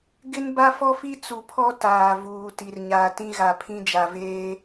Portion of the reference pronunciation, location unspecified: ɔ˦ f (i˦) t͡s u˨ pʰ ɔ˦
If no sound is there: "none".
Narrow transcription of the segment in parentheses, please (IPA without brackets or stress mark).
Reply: i˦